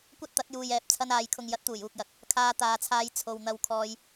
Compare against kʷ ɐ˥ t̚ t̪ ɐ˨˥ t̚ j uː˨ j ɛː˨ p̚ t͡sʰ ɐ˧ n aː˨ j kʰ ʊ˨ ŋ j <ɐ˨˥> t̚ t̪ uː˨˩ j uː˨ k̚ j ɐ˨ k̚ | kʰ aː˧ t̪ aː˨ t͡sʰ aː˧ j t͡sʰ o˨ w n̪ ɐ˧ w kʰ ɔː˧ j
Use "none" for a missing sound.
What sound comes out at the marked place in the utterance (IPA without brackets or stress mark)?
ɐ˨˥